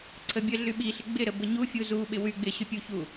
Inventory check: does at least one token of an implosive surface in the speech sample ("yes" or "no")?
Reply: yes